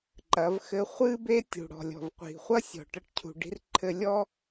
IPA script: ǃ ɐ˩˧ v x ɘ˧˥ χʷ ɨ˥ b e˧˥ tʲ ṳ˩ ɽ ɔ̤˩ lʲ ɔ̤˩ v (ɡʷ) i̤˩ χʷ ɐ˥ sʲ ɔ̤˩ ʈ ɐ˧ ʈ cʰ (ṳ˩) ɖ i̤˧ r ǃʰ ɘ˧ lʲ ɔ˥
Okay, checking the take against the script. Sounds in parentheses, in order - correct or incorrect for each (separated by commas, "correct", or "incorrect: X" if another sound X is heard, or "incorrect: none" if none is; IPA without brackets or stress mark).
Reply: incorrect: qʷ, correct